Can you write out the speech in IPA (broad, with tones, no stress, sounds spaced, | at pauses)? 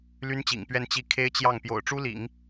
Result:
l y˥ n t͡ɕ ḭ˨˩ ŋ p ɥ ɛ˥˧ n t͡ɕ i˥˩ kʰ e˥ ɪ̯ t͡ɕ j ɑ˥˩ ŋ p j o̰˨˩ ʊ̯ ʈ͡ʂ u˥ l ḭ˨˩˦ ŋ